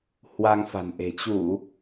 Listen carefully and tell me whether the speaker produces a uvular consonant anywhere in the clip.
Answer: no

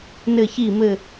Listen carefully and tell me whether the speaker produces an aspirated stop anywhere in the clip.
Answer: no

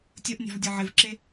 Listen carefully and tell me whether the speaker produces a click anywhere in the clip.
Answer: yes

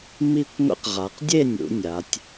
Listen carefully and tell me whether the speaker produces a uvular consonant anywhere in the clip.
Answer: yes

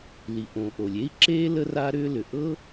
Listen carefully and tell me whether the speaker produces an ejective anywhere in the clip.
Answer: no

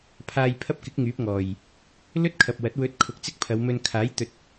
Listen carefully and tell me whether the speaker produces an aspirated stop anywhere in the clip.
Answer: yes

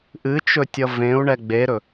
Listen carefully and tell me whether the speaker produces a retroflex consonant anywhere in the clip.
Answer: yes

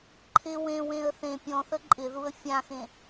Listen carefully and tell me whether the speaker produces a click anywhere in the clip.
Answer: yes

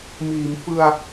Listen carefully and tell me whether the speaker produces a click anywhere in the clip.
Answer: no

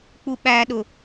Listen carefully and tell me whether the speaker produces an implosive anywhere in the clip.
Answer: yes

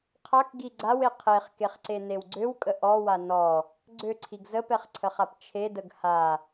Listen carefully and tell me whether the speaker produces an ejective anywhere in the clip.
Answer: yes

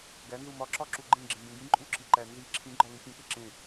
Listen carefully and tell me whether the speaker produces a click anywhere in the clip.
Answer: yes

